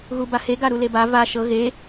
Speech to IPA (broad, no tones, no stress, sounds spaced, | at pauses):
ɣ u b a h e ɡ a ɾ u l e b a v a ʃ ɤ ɣ e